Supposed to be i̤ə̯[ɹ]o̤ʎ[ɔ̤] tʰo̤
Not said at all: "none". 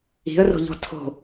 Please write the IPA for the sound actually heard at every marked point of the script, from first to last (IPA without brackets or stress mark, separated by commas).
r, ɔ̤